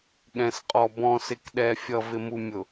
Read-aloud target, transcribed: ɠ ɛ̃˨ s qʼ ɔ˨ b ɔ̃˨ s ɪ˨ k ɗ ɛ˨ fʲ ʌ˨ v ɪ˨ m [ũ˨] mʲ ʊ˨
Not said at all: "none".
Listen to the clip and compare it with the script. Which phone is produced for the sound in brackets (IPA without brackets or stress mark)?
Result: u˨